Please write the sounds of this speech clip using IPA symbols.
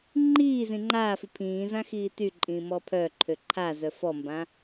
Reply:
ŋ͡ǃ iː z ĩ ŋ͡ǃ aː f i pʰ ĩː z ã x iː t y ǃʼ ĩː m ɔ pʰ œ ǃʰ ø ǃʰ a z œ f ɔ m b ã

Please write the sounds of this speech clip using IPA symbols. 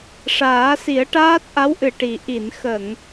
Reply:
ʂ aː˨˩˦ s i˨˩˦ ə̯ ʈ aː˦˥ t̚ ʔ a˧˥ w ʔ ɨ˨˩ ʈ i˨˩ ʔ i˨˩˨ n x ə˨˩˨ ŋ

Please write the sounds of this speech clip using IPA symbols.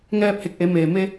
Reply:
ŋ ɛː˧ p̚ h e˧˩ k̚ ʔ e˩˧ m eː˩ m e˧

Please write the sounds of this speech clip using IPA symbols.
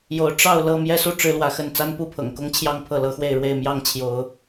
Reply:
j o˨˦ ʊ̯ ʈ͡ʂ ɑ˥˨ ʊ̯ l ɤ˥˨ m j ɛ˦ s u˥˨ ʈ͡ʂ ɻ̩˦ l w ä˨˦ x ə˥˨ n t͡s a˦ n p u˥˨ pʰ ɤ̰˨˩ ŋ k ʊ˦ ŋ t͡ɕʰ j ɑ˥˨ ŋ pʰ ɤ˥˨ l ɤ˨˦ x w e˥˨ ɪ̯ ɻ w e˥˨ ɪ̯ m j ɑ˥˨ ŋ t͡ɕʰ j o˨˦ ʊ̯

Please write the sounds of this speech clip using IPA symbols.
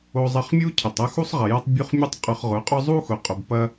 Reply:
o˧ zˤ ɐ˧ χ mʲ u˦ cʰ ə˨ tˤ ɐ˦ x u˦ sˤ ʁ ɐ˨ j ɐ˦ tˤ bʲ u˦ χ mʲ u˦ tˤ qʼ ʊ˧ χ ʁ ʊ˨˦ qʼ ʊ˦ zˤ u˦ x ʊ˨ qʼ ʊ˨ b p ɐ˧

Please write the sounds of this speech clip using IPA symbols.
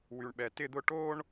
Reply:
w y˩ ɳ ɓ ɛ˩ t ɪ˦˨ d̪ ʊ˦˨ ʈ o˥ ɳ

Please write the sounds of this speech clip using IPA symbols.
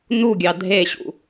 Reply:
n u ɡʲ ɑ dʱ e ɕ ṵ

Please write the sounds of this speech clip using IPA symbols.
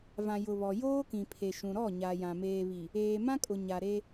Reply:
v ã˨ j ʊ˨ β ɔ˨ j oː˦ k ĩ˨ pʰ e˨ ʃ ũ˨ ɾ ɔ˦˨ ɲ a˨ j ã˨ m eː˨ β i˨ | eː˨ m ã˦ kʼ ʊ˨ ɲ a˨ ɾ e˦

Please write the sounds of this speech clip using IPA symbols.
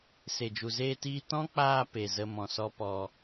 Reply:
s e˨ d͡ʒ u˨ z eː˧ t iː˧ t ɔ̃˦ k͡p aː˧ p e˨ z ə˧ m ɔ̃˨ s ɔ˦ p ɔ˧

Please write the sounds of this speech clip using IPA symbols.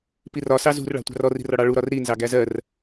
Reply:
p i r ɒ s ɑ z ṳ r ɭ ɑ̤ tʷ ɑ̤ r ɔ r i̤ r ɒ ɽ ɑ ɭ u ɾ ɒ r ɾ i n z ɑ ɡ æ z ɜ r

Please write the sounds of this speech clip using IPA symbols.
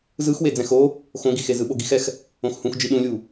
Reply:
z ɯ x w e d͡z ɛ̃ x o | x õ ɡ i x e z ɯ ɓ o ɡ i x ɛ x | õ x h ũ x d͡ʒ i ɗ ũ lʲ u

